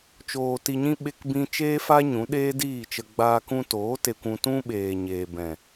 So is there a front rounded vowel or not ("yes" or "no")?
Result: no